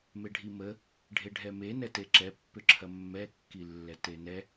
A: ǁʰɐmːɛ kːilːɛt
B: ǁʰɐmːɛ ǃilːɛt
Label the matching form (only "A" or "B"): A